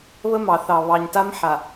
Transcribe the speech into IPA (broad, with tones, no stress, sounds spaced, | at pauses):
β ə˦ m ɑ˨ θ ɑ˨ β ɑ˨ ɲ t a˦ m ħ a˨